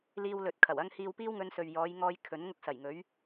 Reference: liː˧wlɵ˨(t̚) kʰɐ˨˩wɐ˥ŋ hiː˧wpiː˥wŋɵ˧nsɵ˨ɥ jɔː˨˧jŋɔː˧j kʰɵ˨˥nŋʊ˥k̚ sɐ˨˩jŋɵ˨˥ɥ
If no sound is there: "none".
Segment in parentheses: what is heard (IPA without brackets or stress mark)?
t̚